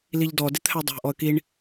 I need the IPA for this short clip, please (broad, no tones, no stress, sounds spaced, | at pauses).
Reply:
l i ʎ d ɔ d ɪ t̪ʰ æ dˤ æ̤ ʔ ɔ ə̯ k i ɳ